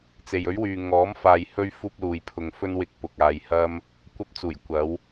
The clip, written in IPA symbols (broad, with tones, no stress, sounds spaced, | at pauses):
t͡s e˨ j ɵ˨˥ ɥ w yː˨ ŋ ɔː˨˥ m f aː˨ j h ɵ˧ ɥ f uː˧ p̚ l uː˨ j pʰ ʊ˨ ŋ f ɵ˧ n w ɪ˨˥ k̚ p ʊ˨ k̚ aː˧ j h ɐ˥ m | kʷ ɐ˧ p̚ t͡s uː˨˩ j kʷ ɐ˨˧ w